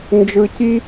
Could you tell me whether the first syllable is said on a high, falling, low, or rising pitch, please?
high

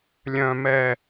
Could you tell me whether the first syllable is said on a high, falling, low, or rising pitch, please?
low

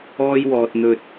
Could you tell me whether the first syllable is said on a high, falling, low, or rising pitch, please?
high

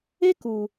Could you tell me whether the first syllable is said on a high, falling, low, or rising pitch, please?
high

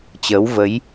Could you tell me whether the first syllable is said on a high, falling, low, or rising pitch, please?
rising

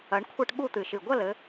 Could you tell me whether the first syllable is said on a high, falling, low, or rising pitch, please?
rising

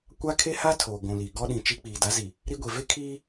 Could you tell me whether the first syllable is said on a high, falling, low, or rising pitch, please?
high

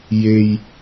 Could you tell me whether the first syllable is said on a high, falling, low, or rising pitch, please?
high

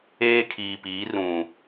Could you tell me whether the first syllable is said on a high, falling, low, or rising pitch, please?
high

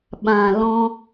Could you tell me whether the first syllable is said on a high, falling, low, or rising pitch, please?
low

